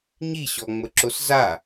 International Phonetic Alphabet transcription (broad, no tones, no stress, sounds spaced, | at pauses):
ɲ i ɕ ɔ ŋ͡m ə ǁ o s z a